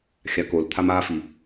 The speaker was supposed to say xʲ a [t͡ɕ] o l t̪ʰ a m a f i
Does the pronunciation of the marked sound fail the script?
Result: yes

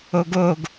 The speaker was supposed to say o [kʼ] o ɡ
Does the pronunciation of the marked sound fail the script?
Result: yes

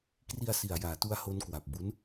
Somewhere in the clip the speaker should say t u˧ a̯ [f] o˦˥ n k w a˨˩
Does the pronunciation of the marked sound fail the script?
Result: yes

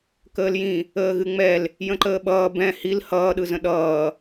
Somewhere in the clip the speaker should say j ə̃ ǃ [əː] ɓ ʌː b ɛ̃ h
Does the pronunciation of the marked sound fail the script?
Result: no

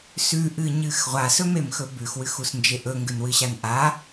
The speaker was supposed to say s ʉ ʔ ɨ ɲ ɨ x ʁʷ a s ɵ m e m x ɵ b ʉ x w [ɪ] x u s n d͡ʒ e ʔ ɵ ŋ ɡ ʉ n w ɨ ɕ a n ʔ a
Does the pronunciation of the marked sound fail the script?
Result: yes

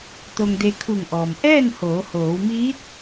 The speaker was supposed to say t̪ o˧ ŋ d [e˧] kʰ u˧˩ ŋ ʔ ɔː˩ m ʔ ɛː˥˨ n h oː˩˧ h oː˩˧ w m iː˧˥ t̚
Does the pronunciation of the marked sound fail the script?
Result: no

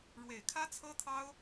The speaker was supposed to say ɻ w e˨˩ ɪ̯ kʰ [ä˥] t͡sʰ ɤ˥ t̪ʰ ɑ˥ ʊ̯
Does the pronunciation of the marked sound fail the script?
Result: no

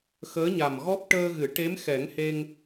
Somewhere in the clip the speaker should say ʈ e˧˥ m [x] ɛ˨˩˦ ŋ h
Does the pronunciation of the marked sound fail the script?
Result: no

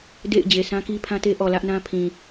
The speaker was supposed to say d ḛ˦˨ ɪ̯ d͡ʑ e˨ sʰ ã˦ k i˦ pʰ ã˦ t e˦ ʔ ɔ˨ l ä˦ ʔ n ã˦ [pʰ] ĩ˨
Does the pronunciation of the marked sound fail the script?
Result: no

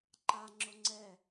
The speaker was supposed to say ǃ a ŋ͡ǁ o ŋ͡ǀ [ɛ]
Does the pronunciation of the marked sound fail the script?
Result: no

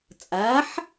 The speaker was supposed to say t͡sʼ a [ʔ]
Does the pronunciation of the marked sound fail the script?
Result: yes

